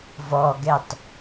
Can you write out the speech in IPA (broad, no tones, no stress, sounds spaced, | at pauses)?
v ɔ ɡ ɛ tˤ